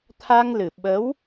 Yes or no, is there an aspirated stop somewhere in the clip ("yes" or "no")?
yes